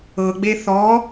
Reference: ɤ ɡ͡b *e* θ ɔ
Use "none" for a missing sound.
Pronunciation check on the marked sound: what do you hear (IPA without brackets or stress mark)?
e